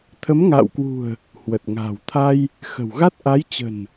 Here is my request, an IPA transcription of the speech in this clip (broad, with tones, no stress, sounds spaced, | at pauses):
t̪ʰ ə˨˦ m ŋ a̰ː˧˨ w k w ṳ˨˩ ə̯ | h w ə˨˩ t̚ ŋ a̤ː˨˩ w t̪ʰ a˧ j | x ə̤˨˩ w ɣ a˦˥ t̚ ʔ a˨˦ j t͡ɕ ə̤˨˩ n